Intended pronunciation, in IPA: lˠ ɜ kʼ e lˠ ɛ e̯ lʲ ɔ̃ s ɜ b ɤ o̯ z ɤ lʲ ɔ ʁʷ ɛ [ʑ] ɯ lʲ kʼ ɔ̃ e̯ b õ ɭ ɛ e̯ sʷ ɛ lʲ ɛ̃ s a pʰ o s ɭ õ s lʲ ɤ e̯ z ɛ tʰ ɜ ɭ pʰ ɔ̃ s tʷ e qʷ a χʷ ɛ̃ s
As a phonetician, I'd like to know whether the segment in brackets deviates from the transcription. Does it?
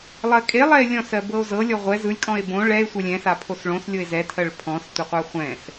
yes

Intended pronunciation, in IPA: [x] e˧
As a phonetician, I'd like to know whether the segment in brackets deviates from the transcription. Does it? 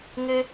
yes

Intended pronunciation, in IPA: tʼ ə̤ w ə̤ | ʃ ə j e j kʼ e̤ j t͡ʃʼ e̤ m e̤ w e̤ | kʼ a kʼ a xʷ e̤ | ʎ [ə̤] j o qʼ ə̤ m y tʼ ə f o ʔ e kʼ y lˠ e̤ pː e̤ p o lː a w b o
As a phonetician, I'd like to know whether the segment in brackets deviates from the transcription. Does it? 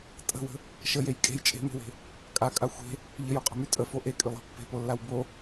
yes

